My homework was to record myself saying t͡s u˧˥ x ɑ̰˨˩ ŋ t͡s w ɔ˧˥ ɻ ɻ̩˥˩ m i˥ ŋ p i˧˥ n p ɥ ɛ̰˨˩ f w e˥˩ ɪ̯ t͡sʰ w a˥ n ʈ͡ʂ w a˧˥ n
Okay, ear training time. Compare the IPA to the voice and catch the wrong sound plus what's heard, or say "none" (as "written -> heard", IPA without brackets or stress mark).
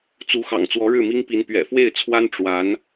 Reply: none